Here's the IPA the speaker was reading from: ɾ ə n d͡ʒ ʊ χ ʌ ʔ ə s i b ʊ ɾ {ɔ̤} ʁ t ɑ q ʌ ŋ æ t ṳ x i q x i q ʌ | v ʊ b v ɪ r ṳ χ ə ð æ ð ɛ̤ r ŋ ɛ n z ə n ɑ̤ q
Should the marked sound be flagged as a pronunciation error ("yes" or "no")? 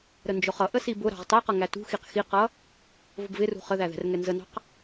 yes